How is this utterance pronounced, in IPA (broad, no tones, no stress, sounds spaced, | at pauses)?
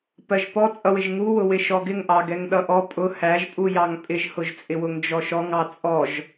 p ɜ ʒ p ɔ t͡sʼ ʌ w ɪ ʒ ŋ u w ʊ w ɪ ʃ ɔ ɡ ɪ ŋ ʔ ɑ ɡ ɛ ŋ ɗ ʌ ʔ ɔ pʼ ʊ h æ ʒ pʼ u j ɑ ŋ pʼ ɪ ʒ h ʊ ʒ t͡sʼ ɪ w ʊ ŋ d͡ʒ ɔ ʃ ɔ ŋ ɑ t͡sʼ ɔ ʒ